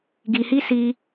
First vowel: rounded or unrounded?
unrounded